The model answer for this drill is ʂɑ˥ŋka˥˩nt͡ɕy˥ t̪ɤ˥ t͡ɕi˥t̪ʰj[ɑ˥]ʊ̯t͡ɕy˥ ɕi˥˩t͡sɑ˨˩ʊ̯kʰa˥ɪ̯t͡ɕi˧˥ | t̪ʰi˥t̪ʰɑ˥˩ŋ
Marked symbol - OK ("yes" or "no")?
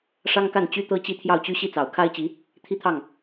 no